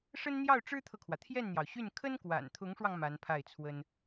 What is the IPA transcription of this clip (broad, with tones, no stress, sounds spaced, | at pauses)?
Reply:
ʂ ə˥ n n̪ j ɑ˥˩ ʊ̯ ʈ͡ʂ ɻ̩˥ t̪ʰ ɤ˨ kʰ w ä˩ t̪ʰ j ɛ˥˩ n n̪ j ɑ˩ ʊ̯ ɕ y˥˩ n kʰ ə˥ n k w a̰˨˩ n t̪ʰ ʊ˧˥ ŋ ʂ w ɑ˧ ŋ m a˧˥ n pʰ a˥˩ ɪ̯ t͡sʰ w ə˥ n